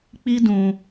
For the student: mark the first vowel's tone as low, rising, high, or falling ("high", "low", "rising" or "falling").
high